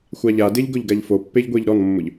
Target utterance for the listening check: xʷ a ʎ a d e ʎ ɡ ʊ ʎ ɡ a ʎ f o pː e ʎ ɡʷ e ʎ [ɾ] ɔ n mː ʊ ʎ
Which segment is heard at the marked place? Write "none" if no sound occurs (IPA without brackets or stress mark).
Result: ɾ